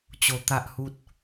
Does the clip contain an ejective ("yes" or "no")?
no